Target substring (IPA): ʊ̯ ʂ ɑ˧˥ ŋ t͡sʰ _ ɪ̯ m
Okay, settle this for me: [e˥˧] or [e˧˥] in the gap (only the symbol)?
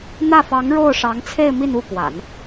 e˥˧